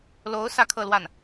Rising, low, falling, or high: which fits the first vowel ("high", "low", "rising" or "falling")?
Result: rising